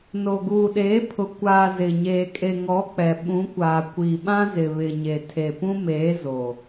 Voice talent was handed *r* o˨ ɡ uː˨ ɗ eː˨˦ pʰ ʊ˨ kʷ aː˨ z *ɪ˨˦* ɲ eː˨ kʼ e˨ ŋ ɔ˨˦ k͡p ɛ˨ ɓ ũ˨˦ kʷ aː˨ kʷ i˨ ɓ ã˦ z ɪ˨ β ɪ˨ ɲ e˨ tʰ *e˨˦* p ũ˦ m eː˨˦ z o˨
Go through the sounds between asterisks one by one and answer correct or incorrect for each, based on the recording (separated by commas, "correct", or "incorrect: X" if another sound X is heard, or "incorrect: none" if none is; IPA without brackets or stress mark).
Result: incorrect: n, incorrect: ɪ˨, incorrect: e˨